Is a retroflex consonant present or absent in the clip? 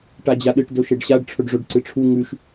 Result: present